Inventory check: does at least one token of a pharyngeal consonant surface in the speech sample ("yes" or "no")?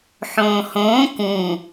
yes